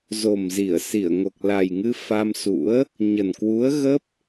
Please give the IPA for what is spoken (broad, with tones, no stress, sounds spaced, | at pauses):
z o˨˩ m z i˧˩ ə̯ s i˧˩ ə̯ ŋ o˨˩ k̚ l a˨˩ j ŋ ɨ˧ f a˧ m s ṵ˧˥ ə̯ | ɲ ə˨˩ n k w u˨˦ ə̯ ɣ ə˦˥ p̚